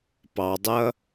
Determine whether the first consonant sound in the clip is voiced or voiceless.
voiceless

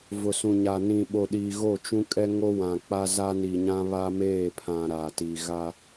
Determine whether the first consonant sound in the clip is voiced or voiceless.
voiced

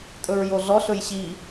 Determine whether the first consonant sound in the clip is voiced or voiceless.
voiceless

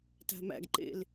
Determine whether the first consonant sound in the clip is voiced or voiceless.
voiceless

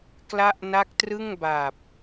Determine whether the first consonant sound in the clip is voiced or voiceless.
voiceless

